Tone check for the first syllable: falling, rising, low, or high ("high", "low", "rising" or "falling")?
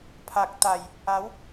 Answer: low